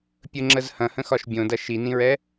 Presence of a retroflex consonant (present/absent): absent